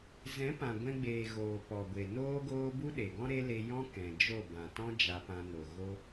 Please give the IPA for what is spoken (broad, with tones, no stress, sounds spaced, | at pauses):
z ɛ̃˨˦ p ã˨ ɡʷ ɛ̃˧ ɡ͡b eː˨ ɣ oː˨ p ɔ˨ ɡʷ e˨ n oː˦ ɡ oː˦ b u˦ ɗ e˨ ɡ ɔ̃˦ ɾ e˦ l e˧ j ɔ̃˦ k ɛ̃˨ d͡ʒ o˦˨ b ã˨ t ɔ̃˦ d͡ʒ a˧ p ã˧ n o˨ ɣ o˦